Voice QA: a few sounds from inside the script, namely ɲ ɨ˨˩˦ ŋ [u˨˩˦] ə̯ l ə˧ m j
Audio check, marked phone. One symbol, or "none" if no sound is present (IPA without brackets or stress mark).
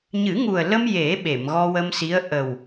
u˨˩